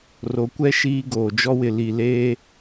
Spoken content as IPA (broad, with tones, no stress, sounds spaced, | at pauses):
r o˨ kʷ ɛ˦ ʃ iː˦ ɡ oː˨ d͡ʒ ɔ˦ w ɪ˨ l i˨ l eː˦